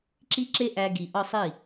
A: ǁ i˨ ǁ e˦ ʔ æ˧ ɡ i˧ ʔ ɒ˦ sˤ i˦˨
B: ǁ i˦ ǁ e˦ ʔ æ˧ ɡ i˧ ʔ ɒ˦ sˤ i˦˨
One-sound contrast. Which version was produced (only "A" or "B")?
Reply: B